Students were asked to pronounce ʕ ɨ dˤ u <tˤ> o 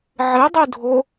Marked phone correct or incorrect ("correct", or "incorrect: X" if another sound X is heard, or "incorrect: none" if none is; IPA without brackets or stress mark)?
incorrect: dʱ